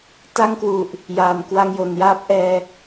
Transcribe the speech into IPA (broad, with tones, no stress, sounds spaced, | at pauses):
t a˥˩ ŋ k w u˨˩ ʔ | j aː˨˩ n k w a˧ ŋ j o˨˩ n j aː˦˥ p̚ ʔ ɛː˧